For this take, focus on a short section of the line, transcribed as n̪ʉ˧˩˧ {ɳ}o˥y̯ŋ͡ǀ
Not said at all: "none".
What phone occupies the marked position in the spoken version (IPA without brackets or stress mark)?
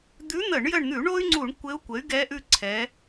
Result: ɳ